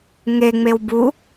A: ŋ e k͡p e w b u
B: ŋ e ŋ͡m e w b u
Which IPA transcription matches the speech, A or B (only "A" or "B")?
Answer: B